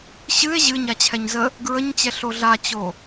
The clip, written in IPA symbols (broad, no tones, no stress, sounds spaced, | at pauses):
ɕ ɨ e̯ ʑ ɨ ɲ a t͡ɕʰ ɛ ɲ z ə | ɡ ɹ ə ɲ t͡ɕ ɛ ɬ o ɮ a t͡ɕ o